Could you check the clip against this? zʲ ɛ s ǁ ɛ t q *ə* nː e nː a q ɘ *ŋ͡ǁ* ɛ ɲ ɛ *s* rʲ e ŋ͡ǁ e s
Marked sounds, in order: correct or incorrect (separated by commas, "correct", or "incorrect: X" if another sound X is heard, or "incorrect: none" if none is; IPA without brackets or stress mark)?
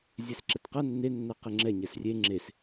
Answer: incorrect: ɐ, correct, correct